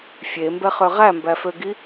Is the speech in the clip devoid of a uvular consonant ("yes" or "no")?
no